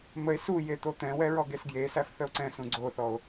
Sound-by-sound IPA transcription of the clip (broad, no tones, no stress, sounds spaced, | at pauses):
m ə e̯ s u j e t̪ o t̪ ɛ̃ w ɛ ɹ ɔ ɡ e s ɡ j e s æ f θ ə o̯ ǀ ɛ̃ s ũ ɡ͡ǀ o θ ɔ o̯